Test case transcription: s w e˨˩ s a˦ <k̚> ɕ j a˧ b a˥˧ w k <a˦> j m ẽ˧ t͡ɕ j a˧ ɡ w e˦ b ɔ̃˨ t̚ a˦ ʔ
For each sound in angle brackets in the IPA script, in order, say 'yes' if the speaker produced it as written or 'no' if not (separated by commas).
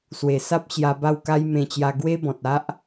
no, yes